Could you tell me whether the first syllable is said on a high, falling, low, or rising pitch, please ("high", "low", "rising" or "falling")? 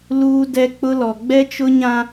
high